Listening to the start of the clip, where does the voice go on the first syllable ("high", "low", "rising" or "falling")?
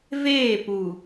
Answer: falling